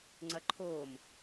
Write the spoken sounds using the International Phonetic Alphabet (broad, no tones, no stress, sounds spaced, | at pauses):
ŋ͡ǀ ɐ ǃʰ oː m